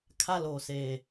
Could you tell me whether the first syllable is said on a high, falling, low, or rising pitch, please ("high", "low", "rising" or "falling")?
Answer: high